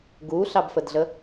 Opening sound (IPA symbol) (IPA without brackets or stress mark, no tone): ɡ